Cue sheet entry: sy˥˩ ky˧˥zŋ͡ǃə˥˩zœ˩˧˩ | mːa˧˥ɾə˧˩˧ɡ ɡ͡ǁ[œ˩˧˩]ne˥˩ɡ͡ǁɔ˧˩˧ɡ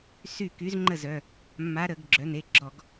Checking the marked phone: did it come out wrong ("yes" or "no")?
no